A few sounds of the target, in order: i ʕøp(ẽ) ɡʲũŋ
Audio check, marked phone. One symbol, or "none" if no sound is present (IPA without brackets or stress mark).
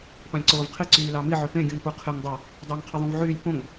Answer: ẽ